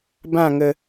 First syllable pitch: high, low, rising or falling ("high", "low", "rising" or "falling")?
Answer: falling